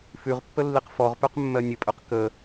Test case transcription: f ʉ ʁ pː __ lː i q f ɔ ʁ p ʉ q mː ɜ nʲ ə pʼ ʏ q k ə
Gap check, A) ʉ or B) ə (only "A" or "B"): B